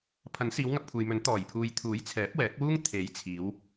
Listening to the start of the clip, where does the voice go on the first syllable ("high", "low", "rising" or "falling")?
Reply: rising